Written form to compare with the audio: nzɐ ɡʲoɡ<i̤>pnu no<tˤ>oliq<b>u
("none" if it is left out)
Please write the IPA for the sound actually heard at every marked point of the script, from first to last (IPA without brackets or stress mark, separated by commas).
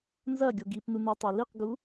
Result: i, tˤ, ɡ